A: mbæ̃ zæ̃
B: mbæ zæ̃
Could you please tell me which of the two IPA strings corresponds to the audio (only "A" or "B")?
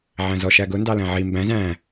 A